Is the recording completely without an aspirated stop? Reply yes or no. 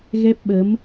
yes